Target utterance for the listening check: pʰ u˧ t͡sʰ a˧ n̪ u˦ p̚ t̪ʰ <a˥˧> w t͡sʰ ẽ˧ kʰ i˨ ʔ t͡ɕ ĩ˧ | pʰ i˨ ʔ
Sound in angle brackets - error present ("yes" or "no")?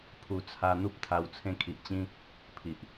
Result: yes